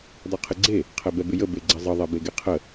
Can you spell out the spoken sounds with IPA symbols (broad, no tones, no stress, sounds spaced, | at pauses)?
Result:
dˤ ɛ qʰ ɪ ɡ͡ǀ e | qʰ ɛ b ɛ b ɪ j ə b e ɡ͡ǀ ɛ zˤ ə ðˤ ɛ b e ɡ e qʰ ə